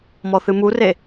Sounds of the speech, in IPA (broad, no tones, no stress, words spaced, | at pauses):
mɔθɨmure